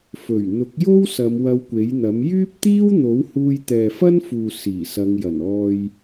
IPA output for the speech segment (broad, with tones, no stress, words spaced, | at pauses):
fɵ˨˩ɥ n̪ʊ˨˥k̚jo˥wsɐ˨˧m wɐ˧wkʷe˨˥jn̪ɐ˨˥m jyː˥p̚t̪iː˥wn̪o˨˥w huː˧jt̪ɛː˨fɐ˥nfuː˨ siː˨˩sɐ˨˧ŋ jɐ˨˩nɔː˧j